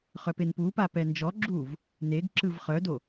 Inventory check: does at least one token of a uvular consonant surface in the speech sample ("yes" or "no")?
yes